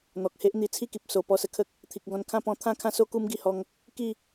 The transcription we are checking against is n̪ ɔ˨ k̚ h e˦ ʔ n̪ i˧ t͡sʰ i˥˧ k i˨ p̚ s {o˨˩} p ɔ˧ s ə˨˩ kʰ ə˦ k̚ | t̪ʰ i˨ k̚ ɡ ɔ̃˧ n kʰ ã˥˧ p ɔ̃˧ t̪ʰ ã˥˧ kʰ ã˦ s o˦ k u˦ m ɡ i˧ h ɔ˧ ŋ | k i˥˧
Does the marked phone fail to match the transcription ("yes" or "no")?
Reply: no